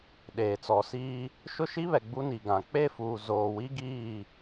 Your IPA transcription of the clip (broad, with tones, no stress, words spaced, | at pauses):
ɗeː˨t͡sɔ˨siː˦ | ʃʊ˦ʃi˦βɛ˨ ɡ͡bu˦ ni˨ ɡã˨ k͡pe˦˨fuː˨ zoː˨wi˦ ɡiː˦˨